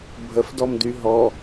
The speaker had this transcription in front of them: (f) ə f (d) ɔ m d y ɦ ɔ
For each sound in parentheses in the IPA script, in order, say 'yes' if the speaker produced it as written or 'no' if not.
no, yes

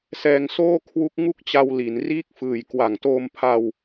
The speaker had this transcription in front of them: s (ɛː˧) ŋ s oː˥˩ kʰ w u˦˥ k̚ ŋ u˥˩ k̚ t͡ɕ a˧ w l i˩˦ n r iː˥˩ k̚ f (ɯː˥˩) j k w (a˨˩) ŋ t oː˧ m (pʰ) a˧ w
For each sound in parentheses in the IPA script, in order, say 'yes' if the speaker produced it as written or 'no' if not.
yes, no, yes, yes

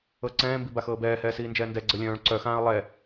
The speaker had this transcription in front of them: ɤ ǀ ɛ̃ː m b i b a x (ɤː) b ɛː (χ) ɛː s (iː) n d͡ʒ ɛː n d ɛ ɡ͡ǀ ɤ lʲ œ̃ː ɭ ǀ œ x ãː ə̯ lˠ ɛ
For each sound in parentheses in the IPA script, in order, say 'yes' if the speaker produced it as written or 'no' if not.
yes, no, yes

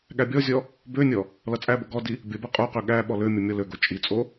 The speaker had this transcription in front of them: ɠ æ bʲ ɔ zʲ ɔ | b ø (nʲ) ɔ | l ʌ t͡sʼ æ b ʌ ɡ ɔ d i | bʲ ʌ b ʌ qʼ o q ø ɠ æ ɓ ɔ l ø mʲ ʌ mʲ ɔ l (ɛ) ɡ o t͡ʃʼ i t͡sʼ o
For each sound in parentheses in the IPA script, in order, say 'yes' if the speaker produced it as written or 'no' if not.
yes, no

